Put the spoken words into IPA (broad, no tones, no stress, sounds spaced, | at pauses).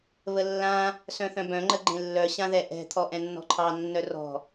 β ə lː ã | s œ̃ θ œ̃ b œ̃ ŋ͡ǃ ə ɡ͡ǃ ẽ lː œ ɕ ã ð ɛ ʔ ɛ̤ t̪ʰ ɔ ʔ ɛ̃ nː ɔ̤ ǃʰ ɑ nː œ r ɔ̤